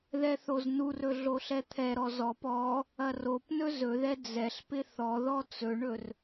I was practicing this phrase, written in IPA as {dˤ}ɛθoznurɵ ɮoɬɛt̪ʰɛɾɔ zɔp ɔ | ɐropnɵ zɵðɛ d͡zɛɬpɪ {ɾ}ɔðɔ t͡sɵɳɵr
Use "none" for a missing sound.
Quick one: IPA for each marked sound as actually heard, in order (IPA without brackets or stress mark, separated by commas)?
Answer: ð, θ